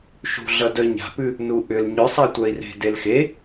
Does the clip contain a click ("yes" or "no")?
no